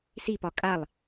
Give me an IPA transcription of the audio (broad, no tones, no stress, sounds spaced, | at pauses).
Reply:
s i p ɒ kʼ a lˠ